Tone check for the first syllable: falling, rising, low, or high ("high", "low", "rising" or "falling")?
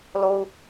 low